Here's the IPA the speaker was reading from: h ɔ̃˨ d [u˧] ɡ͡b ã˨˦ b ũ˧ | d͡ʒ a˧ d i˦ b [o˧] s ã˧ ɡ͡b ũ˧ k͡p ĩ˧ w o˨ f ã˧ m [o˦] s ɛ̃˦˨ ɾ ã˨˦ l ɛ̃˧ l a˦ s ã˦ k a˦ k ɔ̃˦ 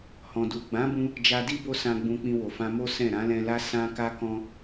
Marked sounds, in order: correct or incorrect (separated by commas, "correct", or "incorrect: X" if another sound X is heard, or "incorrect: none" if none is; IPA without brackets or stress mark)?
incorrect: u˨, incorrect: o˦, correct